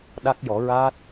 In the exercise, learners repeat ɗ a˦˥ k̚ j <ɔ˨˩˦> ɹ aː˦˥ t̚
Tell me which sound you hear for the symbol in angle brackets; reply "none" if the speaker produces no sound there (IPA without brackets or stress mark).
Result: ɔ˨˩˦